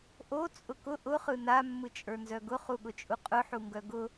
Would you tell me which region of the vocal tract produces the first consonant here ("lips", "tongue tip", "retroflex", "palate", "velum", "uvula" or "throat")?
throat